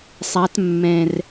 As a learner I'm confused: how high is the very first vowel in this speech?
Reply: low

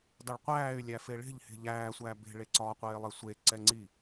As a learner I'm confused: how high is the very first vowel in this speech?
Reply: low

